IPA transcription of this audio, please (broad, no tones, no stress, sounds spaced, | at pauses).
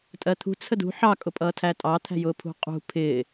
tʼ ɜ t̪ʰ ṳ t͡sʰ ə d ṳ ħ ɑ kʼ ʊ pʼ ʌː tʰ æ tʼ ɑ t̪ʰ æ̤ j ʊː pʰ ṳ qʼ ṳ pʰ ɪː